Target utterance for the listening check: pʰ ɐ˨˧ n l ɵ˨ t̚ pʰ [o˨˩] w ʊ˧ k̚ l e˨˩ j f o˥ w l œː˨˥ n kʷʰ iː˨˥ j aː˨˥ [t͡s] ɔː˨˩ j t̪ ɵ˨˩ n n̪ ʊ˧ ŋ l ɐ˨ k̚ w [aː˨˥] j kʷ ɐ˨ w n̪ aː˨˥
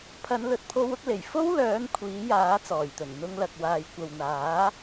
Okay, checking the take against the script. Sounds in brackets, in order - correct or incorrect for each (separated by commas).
incorrect, correct, incorrect